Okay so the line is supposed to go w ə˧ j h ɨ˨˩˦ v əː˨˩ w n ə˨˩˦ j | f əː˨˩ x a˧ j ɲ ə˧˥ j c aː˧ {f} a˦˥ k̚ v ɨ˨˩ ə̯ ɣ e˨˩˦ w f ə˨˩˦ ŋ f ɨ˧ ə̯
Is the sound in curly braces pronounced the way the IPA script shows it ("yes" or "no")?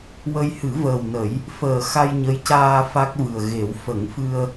yes